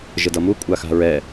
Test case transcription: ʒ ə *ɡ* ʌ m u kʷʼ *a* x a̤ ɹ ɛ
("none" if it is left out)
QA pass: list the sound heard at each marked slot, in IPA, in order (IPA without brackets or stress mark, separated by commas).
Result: d, a